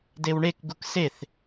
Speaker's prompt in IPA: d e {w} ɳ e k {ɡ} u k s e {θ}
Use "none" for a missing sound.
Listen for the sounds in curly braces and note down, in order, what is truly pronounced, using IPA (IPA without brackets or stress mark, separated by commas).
w, ɡ, θ